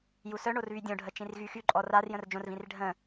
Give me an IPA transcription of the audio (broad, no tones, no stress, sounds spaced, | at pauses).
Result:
j u s œ ɳ o r β y dʲ õ ɖʱ ə t͡ʃ ĩ r ɣ y x y ǃʼ ɔ r a r j ə̃ r d͡ʒ õ r v ĩ r ɖʱ ə̃